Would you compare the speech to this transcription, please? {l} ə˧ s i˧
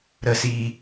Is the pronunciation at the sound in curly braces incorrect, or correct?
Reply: incorrect: ɾ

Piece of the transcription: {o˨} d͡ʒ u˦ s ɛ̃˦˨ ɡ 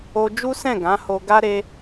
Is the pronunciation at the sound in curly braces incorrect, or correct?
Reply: incorrect: o˧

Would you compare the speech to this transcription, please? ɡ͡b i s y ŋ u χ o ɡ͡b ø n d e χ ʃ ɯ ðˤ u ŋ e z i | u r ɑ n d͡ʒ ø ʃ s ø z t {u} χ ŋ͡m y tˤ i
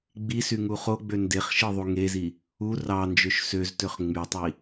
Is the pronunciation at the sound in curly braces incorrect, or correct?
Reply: incorrect: ø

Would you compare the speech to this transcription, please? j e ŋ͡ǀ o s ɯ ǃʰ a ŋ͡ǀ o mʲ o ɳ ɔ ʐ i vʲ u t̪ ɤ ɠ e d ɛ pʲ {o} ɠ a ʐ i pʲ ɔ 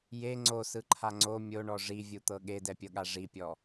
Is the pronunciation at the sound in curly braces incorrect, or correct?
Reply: incorrect: ɤ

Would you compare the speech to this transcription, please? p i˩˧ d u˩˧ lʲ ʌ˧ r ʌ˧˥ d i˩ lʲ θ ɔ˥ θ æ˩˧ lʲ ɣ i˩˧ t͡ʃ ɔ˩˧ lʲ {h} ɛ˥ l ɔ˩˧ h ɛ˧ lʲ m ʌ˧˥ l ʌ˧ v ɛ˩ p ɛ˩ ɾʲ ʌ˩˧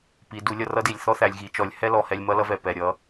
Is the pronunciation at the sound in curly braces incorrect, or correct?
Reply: correct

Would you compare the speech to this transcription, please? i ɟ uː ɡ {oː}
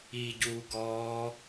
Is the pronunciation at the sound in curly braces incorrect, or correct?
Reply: incorrect: ɔː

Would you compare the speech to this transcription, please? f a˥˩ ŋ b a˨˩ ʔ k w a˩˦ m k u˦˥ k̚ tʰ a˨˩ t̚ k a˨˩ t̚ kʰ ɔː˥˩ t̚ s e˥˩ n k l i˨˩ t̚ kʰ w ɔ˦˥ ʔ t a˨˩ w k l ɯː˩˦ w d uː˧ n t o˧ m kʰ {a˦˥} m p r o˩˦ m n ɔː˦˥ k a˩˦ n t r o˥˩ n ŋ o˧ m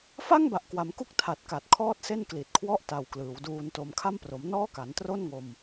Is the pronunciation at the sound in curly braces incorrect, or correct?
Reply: incorrect: a˥˩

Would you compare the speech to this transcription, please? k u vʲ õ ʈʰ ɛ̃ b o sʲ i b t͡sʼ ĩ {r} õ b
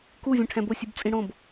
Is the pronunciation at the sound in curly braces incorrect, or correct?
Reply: incorrect: ɽ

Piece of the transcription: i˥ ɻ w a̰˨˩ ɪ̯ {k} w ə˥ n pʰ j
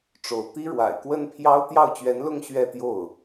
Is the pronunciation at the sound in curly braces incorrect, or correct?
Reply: correct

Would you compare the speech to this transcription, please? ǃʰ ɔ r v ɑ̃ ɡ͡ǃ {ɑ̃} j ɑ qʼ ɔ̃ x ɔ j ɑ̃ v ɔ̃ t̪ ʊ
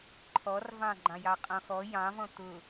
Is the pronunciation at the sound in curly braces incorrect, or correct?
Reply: correct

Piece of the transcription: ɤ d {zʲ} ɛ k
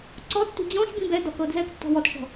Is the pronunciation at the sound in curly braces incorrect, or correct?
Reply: incorrect: z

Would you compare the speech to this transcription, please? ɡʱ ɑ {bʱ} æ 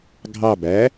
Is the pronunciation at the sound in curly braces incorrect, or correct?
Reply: incorrect: b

